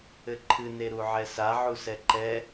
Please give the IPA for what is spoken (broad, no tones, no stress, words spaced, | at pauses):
ɘǃʰɨ neɾuʕɛsa ʕusɛǃɛ